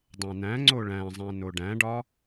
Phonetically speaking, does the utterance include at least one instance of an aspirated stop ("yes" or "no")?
no